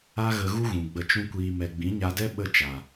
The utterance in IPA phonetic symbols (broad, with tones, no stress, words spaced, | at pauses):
a˦ɣə˧ ɣu˦ɣũ˨ ɡ͡bə˧t͡ʃũ˦ kʷiː˧mɛ˧ ɡ͡bĩ˨˦ɲa˧dɛ˦ ɓə˦ t͡ʃa˨